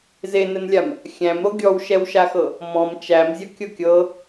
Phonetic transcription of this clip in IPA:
z e n ɘ n lʲ a m | xʲ æ̃ m ɾ o ɡʲ ɔ w ʃ ɛ w ʃ a x ɤ | m ɔ̃ m t͡ʃ æ m zʲ ʌ kʲ ɤ kʲ ɤ

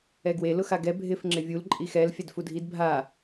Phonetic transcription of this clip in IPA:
ɛ ɡ w e l ʊ x a ɡ ɛ bʱ ɪ f ŋ͡ǁ ɪ vʲ u l ǃʼ i x ɛ l fʲ a d f u dʱ i d bʱ a

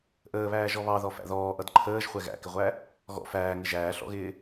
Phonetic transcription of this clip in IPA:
ʔ əː β æː ʒ ɔ β ɑ ð ɔ f æ̰ ð ɔː ʔ ʌ d ǃʰ əː ʒ χʷ ɛ ɣ æ̰ k ɪ ʁʷ æ | ɣ ɔ̰ f æː ŋ ɪ ʒ æː ɬ ɔ̰ ɣ ɪː

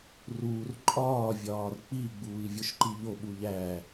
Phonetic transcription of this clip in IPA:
r uː r ǃʼ ɒː vʲ ɒː r k͡p i ɡ͡b uː i̯ vʲ o ʃ ǃ i ʎ o ɓ u ʎ æ

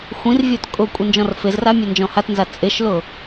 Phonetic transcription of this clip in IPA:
xʷ ĩ r vʲ o t kʼ ʊ kʷʼ i n d͡ʒ ɔ̃ r f ɪ z r a mʲ ɛ n d͡ʒ ɔ̃ h a t n z a t͡sʼ ɪ ʃ l ʊ

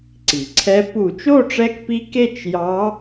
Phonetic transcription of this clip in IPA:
ǀ i˩ ǀʰ ɛ˧˥ p u˧˩˧ t͡ʃ o˥˧ ʈ͡ʂ ɛ˧˥ k p i˧˥ k e˥˧ t͡ʃ j ɑ˧˥

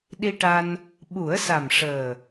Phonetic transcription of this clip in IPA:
ɗ i˧ ʈ a˧ n | ɓ u˨˩˦ ə̯ s a˨˩ m ʂ əː˨˩

